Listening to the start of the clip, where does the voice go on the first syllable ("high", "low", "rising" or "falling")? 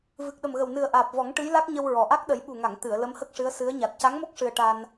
low